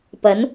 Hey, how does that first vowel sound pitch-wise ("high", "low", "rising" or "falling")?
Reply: rising